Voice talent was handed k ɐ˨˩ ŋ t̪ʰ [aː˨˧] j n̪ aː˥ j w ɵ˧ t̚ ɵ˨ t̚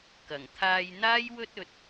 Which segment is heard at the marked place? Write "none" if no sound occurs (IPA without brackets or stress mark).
aː˧